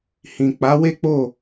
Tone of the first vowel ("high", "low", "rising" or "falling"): low